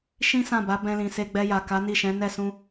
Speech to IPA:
ʃĩ˦sã˦˨ba˨˦ bɛ̃˧lĩ˨ se˧ɡ͡bɛ˧ja˨ ka˨˦ni˦˨ʃɛ̃˨˦ nɛ˦˨sũ˧

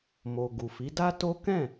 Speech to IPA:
mo˨ ɡu˨fi˨˦da˦to˦ kɛ̃˦˨

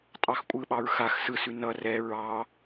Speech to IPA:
tʼɑxkʷʼɯɓɑɹ xax sɯsʉ nʌ rɛ ɹɑ

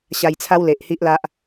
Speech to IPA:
ɕa˧jt͡sʰa˦wle˨ʔ hi˦ʔla˦ʔ

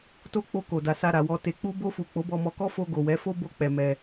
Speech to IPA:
to˧ k͡po˧ko˨ da˨sa˧ɾa˨wɔ˧ te˨k͡pu˧bo˧fu˨ k͡po˨˦bɔ˧mɔ˧kɔ˦ fo˧ ɡo˨wɛ˨˦fo˦ bo˧k͡pɛ˨ mɛ˧

